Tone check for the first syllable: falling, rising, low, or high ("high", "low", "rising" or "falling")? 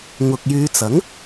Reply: low